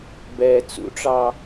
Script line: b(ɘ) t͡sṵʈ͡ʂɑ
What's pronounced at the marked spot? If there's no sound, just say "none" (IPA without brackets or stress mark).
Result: ɛ